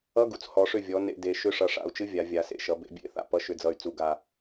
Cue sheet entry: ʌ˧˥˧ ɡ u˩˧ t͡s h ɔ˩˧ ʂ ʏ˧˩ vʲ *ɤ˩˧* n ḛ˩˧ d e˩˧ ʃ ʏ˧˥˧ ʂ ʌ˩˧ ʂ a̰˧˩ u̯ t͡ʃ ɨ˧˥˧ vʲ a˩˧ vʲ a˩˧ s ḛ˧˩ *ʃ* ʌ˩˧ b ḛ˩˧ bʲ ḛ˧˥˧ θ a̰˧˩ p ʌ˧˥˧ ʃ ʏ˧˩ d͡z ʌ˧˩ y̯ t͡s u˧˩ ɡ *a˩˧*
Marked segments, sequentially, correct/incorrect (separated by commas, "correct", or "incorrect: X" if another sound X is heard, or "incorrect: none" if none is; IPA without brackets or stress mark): incorrect: ɔ˩˧, correct, incorrect: a˧˩